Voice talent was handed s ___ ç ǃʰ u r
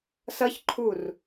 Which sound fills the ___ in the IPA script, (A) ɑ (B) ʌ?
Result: B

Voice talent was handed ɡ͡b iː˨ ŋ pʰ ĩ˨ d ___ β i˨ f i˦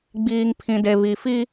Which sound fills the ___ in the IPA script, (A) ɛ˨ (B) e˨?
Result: B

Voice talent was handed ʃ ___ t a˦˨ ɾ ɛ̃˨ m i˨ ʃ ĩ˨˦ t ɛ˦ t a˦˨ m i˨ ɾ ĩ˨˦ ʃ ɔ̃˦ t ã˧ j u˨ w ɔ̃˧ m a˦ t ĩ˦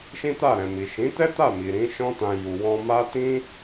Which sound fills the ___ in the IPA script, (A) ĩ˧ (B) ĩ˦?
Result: B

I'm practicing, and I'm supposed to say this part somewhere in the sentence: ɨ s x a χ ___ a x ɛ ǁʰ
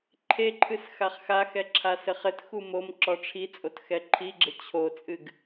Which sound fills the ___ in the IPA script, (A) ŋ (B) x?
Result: B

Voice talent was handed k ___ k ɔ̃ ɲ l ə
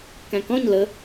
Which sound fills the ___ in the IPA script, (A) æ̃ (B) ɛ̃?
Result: A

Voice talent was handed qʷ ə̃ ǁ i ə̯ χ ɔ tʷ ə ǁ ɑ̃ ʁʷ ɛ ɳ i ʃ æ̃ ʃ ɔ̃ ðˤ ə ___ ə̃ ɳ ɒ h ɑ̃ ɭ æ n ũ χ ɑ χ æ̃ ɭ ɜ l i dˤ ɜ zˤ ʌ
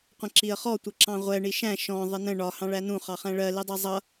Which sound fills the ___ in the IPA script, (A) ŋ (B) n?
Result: B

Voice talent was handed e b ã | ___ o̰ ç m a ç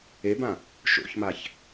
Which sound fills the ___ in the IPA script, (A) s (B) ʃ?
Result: B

